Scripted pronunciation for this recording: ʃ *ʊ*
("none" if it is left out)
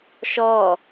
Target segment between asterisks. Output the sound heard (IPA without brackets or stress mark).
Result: ɔ